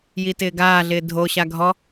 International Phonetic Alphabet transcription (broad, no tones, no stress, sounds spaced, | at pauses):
j i t ɪː ɡ aː ɮ ɪː dʱ o ɕ a ɡʱ ɔ